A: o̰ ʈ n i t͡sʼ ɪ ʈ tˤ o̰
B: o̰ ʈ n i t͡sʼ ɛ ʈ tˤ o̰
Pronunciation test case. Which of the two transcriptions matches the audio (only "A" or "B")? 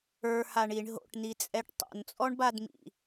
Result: B